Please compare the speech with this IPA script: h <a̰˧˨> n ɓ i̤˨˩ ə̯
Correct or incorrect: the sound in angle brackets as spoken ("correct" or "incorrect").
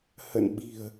incorrect